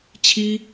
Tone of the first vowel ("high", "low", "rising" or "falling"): high